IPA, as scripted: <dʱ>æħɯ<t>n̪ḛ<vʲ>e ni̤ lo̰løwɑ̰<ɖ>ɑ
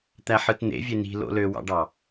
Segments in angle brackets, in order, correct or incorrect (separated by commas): incorrect, correct, correct, correct